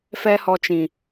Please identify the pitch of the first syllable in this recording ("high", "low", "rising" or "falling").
high